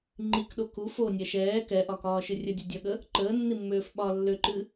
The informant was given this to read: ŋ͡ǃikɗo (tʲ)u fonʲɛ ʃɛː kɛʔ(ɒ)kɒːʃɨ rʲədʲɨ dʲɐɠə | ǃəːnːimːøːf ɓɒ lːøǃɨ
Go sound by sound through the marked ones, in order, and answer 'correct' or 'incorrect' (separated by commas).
incorrect, correct